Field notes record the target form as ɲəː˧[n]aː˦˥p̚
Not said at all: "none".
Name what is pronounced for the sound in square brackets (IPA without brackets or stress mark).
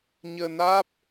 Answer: n